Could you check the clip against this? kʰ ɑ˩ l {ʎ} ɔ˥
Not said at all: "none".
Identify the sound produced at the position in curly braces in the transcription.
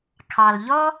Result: ʎ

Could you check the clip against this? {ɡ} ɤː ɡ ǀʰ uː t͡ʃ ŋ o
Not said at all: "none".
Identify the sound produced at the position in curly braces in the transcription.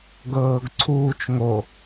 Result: ɡ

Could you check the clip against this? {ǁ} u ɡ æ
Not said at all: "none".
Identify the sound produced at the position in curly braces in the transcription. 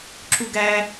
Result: ǁ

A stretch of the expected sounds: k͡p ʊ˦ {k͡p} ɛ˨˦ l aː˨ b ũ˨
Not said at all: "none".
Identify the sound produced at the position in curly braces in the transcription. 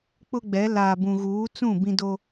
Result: ɡ͡b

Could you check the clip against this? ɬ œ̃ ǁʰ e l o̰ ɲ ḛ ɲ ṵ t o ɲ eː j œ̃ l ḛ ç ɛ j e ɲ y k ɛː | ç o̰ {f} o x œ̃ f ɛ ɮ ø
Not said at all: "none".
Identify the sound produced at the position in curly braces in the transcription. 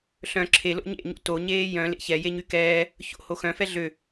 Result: h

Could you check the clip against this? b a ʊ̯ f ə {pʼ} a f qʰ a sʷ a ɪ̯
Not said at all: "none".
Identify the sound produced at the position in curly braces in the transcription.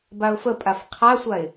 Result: pʼ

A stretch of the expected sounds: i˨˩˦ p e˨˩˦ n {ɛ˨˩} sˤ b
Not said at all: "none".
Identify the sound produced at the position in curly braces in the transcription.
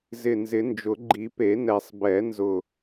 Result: ɛ˨˩˦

